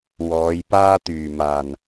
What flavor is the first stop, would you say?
plain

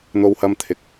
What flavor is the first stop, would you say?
aspirated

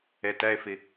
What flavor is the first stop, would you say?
plain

